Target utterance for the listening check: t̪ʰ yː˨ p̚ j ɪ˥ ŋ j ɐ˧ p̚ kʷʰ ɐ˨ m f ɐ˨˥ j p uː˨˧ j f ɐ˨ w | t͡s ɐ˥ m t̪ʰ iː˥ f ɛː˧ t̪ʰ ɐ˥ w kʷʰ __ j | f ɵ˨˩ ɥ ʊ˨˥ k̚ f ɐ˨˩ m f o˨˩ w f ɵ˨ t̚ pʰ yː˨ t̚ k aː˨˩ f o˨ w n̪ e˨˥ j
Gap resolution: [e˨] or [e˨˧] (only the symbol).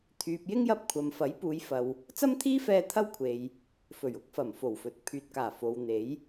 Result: e˨